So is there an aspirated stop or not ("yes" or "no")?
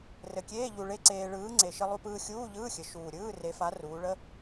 no